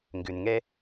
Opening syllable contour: low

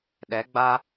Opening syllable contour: rising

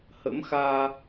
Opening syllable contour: rising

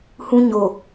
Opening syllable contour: high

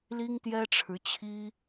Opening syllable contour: high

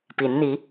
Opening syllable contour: rising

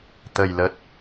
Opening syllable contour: low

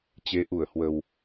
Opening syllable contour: rising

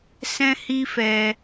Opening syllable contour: high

